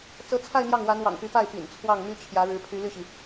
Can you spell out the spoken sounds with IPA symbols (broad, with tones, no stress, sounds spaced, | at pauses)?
t͡s ɤ˧˥ t͡sʰ a˥˧ ɪ̯ n̪ j ɑ˥˩ ŋ w a˧˥ n w ɑ̰˨˩ ŋ p y˧˥ p a˥˩ ɪ̯ p ḭ˨˩ n t͡sʰ w ɑ˥˩ ŋ m y˥ t͡ɕʰ j ä˧˥ ɻ ɻ̩˧˥ pʰ y˧˥ l y˥˩ ɕ i˩